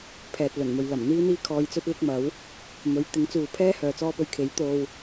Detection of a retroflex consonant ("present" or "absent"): absent